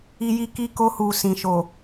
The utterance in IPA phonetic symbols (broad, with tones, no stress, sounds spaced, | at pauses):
i˧ j i˧ k i˧ k o˧ h u˨ s ĩ˨ ʃ o˨